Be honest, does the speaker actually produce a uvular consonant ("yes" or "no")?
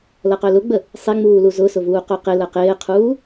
yes